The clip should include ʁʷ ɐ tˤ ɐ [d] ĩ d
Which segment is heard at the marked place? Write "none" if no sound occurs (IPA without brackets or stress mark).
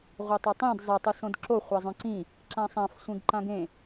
tˤ